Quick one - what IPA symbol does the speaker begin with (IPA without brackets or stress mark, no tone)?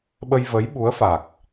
ɓ